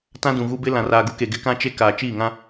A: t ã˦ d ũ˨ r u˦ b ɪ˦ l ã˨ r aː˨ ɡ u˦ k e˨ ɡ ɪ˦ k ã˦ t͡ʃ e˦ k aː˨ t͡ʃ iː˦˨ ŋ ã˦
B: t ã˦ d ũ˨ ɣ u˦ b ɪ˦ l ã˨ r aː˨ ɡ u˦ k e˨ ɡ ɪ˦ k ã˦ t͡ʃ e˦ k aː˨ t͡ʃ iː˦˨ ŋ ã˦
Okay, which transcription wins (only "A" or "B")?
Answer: B